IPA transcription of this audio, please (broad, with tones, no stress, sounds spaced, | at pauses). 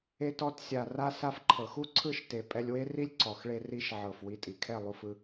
e˧ t ɔ˧ t sʲ a˨ r a˧ s a˧ f ǃʰ ɤ˨ x u˦ ǀʰ ɯ˦˨ ʃ t e˨ pʼ ɛ˧ lʲ w e˦ r i˦ lʲ ǀ ɔ˨ x ɭ e˧ r i˧ ʃ ʕ ɤ˨ f w i˨˦ tʼ i˨ kʰ ɛ˦˨ lˠ u˧ f ɯ˧